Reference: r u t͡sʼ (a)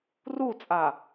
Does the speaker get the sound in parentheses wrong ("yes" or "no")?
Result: no